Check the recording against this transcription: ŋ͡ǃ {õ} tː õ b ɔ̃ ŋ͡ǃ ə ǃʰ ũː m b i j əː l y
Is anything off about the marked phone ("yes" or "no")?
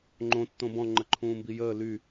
no